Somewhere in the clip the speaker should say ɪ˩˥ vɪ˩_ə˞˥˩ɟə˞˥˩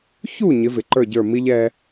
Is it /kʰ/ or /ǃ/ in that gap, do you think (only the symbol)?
ǃ